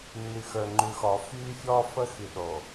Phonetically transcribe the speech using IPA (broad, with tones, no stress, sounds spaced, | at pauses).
nː y˨ x ə˞˨ ŋ͡ǃ ʉ˨ x ɔː˨ f yː˦ fʲ ɔː˦ f ə˦ x y˨ ɗ o˨